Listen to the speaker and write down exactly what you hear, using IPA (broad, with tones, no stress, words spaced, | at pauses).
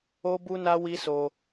o˦bu˦na˦ wi˦so˧